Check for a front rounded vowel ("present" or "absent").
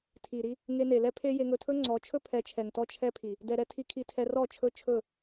absent